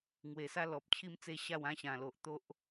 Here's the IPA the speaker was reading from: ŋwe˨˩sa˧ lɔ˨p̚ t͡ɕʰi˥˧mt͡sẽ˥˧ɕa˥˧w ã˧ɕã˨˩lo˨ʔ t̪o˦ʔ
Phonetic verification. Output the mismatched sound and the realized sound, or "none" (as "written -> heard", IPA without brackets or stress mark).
ẽ˥˧ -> e˥˧